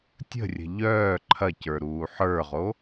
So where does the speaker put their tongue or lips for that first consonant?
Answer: tongue tip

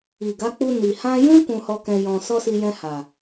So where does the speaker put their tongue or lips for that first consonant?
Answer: velum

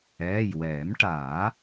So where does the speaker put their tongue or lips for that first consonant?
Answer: palate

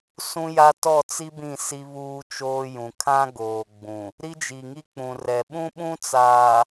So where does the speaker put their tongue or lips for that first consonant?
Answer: tongue tip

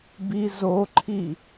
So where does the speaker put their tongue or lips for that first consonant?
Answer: lips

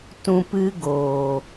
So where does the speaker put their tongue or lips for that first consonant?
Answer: tongue tip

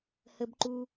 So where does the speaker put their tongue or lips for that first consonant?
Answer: throat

